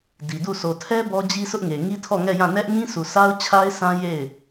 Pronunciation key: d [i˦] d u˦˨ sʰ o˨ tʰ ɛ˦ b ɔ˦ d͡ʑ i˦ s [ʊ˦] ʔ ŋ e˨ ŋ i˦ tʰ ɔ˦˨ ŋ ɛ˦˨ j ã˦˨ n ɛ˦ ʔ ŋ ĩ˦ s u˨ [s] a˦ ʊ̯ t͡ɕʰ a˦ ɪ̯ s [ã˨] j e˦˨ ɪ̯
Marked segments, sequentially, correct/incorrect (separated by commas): incorrect, correct, correct, incorrect